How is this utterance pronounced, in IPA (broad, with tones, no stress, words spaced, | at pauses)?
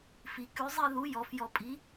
fi˩˧ kʉ˩˥zˤi˥˨ ðu˩˥ jɔ˩˥fjɔ˧ pʼi˩˥